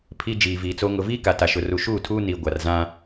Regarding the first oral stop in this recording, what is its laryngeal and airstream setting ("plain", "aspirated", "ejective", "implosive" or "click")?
aspirated